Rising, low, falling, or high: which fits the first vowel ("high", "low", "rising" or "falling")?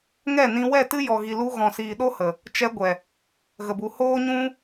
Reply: falling